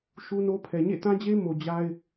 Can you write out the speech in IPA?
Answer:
ʃ u˦ n o˦ pʰ ɛ˨ ɲ ḛ˦˨ t ã˦ d͡ʑ e˦ m o˨ d͡ʑ a˦ ɪ̯

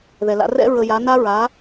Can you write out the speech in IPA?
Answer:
ð ɛ˩ l a̰˧ r ɛ̰˥ ɹ ə˧ j a˩˥ n a˥ ɹ a˩˥

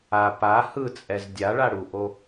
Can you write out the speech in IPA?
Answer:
a p a h ɯ t͡sʼ ɛ z dʲ a ɭ a ɽ u ʔ o

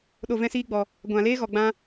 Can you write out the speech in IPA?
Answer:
ɗ o˨ v ɛ̃˧ s iː˧ ɡ͡b ɔ˨ | ɡʷ ã˨ l eː˦ ɣ ɔ˨ ɡ͡b ã˧

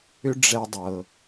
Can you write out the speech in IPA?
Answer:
ʏ˥ ɖ͡ʐ ɛ˧ dˤ ɤ˩

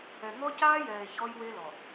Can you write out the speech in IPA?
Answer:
ɛ˨ ŋ ɔ˦ c aː˦ j ɛː˨ e̯ ç ɔ˦ j w e˦ l ɔ˨

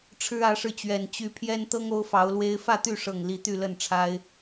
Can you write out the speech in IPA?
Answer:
ʈ͡ʂʰ ɻ̩˦ ä˨˦ ʂ ɻ̩˧ t͡ɕ ɥ ɛ˨˩ n t͡ɕ y˨˦ pʰ j ɛ˦ n t̪ ɤ˦ ŋ o˦ ʊ̯ f ɑ˨˦ ʊ̯ l w e˦ ɪ̯ f ä˥˨ t̪ y˥˨ ʂ ɤ˨˩ ŋ l i˨˦ t̪ y˥˨ l ə˥˨ n ʈ͡ʂʰ a˦ ɪ̯

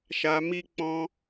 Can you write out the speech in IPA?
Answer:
ʃ a˧ m i˦ k͡p ɔ̃˧

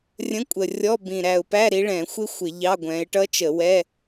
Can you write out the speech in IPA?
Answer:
rʲ ə̃˧˥˧ kʷʼ ə˨˩ rʲ ɔ˧˥˧ b ĩ˨˩ ɾ æ˨˩ ʊ̯ p æ˧˥˧ ɾ i˨˦ ɭ ɛ̃˧˩˧ xʷ ɪ˦˥ xʷ ɪ˧˩˧ ʎ ɑ˧˥˧ ɡʷ ɛ̃˨˦ ɪ̯ ʈ ʌ˦˥ t͡ʃ ə˧˩˧ w ɛ˧˥˧

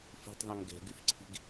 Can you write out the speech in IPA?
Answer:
f i̤ tˤ ðˤ ɛ̃ ŋ ɡ ɛ̤ ɡ y f ǀʰ i̤ ɡ

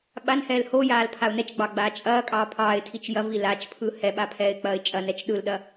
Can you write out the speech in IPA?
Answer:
ɓ a n h ɛː l h o j aː l pʰ a ʊ̯ n ɛ t͡ʃ ɡ͡b ɑ ɡ͡b aː t͡ʃʼ ɐː kʼ ɑː pʰ ɑː ɪ̯ tʰ i t͡ʃ j ɐ v i l a t͡ʃ pʰ ɯ h ɛ ɓ a pʰ ɛː ɪ̯ k͡p ɐː ɪ̯ t͡ʃʼ ɐ n ɛ t͡ʃ ɗ ɯ l ɗ ɐ

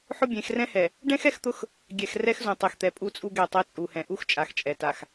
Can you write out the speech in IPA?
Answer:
ħ ʊ˦ bʲ ẽ˨˦ x r ɛ̃˦ h ɛ˨ | ɖ ɛ̃˦ x ɛ˦ x t̪ ʊ˦ x | ɡʲ ɛ˨ x r ɛ˦ x z ũ˨ tˤ e˨ x t̪ ɛ˨ pʼ u˦ t͡sʼ u˦ ɡ ɛ˦˨ tˤ ɛ˦ t͡sʼ u˨ h ɛ̃˨ ʔ u˦ x t͡ʃʼ a˨ x t͡ʃʼ ɛ˨ t a˨ x

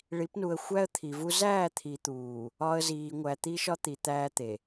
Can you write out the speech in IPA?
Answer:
ɭ i˨˦ p n u˨ ə̯ xʷ æ˦ ə̯ t̪ʰ i˨ v u˦ z æː˦˨ t̪ʰ i˨ t̪ uː˨ | ɒ˦ ə̯ z iː˨ ŋʷ æ˨ t̪ i˦ ʃ ɒ˦ t̪ i˨ t̪ æː˦ t̪ e˨

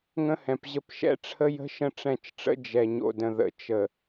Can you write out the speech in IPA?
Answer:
ŋ ə̃˦ h ɛ̃˨ p ʑ ə˦ p ʃ ɛ̰˦ ʈ͡ʂʰ ə˦ j ə̤˦ ʃ ə̃˦ ʈ͡ʂ ɛ̃˦˨ t͡ʃ ʈ͡ʂ ə̰˦ d͡ʒ ɛ˨ ɲ o̰˨ d ə̃˨ ð ə̰˨ t͡ʃ ə˨

